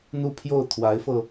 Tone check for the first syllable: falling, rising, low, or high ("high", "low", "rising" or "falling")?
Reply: falling